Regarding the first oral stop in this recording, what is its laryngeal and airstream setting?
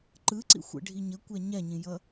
click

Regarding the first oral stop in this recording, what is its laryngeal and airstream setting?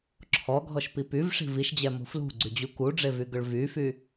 click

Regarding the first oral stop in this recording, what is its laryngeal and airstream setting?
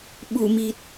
implosive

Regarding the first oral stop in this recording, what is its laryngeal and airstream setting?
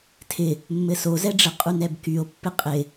aspirated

